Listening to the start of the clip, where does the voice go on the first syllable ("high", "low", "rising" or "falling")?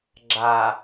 low